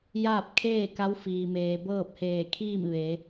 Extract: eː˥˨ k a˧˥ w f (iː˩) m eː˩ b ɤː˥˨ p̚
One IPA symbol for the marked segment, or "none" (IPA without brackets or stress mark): iː˩